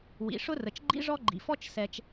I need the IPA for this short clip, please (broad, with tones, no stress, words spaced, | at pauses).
wḭ˩ ʂʊ˥rə˩t͡ʃɡ͡ǃḭ˥ ʐɔ˥ɡ͡ǃḭ˩fɔ˥t͡ʃ sɛ˩t͡ʃ